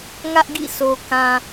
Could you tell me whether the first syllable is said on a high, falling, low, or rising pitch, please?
high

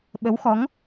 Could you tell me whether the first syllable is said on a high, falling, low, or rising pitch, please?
rising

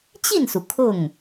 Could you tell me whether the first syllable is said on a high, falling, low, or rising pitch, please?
falling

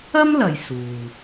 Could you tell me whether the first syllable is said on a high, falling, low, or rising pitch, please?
high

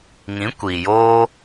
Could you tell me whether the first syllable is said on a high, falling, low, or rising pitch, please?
rising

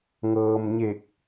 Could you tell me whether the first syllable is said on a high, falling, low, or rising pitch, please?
low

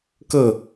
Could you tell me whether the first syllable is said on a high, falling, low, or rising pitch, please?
falling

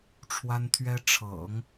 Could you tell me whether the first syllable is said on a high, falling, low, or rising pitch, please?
high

